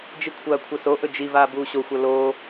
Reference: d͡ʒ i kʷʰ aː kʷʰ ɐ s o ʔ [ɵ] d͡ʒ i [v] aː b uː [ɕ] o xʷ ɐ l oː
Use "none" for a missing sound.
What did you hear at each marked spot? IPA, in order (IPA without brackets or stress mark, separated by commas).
ɵ, v, ɕ